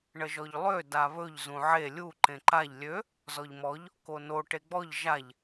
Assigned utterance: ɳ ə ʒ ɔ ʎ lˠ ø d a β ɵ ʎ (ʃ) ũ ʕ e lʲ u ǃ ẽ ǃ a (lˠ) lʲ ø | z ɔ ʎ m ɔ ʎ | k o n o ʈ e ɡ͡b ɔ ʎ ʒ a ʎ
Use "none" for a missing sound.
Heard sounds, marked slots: z, ʎ

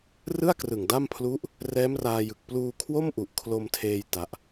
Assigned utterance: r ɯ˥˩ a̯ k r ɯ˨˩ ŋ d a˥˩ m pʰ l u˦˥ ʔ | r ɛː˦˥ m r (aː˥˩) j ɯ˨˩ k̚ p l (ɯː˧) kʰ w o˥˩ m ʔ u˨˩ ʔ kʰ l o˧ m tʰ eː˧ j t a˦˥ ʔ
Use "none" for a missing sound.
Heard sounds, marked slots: aː˧, uː˧

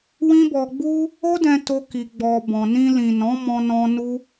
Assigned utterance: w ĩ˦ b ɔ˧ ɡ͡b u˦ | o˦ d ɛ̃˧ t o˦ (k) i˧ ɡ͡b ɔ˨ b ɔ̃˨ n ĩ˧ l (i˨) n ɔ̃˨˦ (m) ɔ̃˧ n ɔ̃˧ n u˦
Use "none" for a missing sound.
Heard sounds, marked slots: k, ĩ˨, m

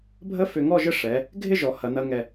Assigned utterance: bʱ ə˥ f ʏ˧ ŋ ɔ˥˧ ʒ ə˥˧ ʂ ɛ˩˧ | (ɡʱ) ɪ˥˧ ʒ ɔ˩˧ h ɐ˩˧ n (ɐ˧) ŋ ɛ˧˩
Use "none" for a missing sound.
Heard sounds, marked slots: ɡʱ, ɐ˧

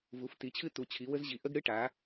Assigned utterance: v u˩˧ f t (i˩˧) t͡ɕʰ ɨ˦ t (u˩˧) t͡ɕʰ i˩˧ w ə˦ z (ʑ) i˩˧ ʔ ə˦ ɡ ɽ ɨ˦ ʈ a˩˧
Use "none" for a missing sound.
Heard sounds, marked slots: i˩˧, u˩˧, ʑ

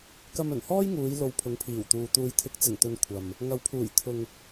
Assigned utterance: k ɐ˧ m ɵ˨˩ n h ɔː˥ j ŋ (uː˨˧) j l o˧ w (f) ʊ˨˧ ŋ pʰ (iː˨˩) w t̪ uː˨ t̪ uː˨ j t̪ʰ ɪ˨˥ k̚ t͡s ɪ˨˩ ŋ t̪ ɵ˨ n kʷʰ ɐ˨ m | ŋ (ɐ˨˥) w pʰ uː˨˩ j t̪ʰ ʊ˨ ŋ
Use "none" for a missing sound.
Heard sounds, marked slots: uː˨˧, pʰ, iː˨˩, ɐ˨˥

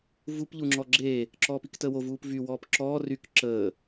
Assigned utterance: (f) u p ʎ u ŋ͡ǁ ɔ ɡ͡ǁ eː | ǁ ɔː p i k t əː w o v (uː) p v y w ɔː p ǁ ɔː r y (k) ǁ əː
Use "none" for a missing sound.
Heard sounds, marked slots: v, uː, k

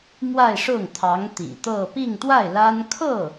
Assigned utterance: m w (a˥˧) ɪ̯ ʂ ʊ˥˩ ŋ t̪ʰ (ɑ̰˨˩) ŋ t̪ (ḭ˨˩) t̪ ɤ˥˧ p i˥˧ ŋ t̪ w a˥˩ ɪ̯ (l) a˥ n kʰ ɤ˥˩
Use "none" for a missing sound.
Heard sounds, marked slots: a˥˧, ɑ˧˥, ḭ˨˩, l

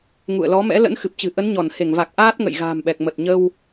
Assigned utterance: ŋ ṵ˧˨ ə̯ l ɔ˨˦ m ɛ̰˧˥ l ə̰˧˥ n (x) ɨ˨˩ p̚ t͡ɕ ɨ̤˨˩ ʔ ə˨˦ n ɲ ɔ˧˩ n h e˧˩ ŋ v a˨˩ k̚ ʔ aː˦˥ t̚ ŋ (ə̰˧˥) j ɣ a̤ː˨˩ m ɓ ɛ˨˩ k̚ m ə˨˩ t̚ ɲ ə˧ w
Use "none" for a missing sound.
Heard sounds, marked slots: x, ə̰˧˨

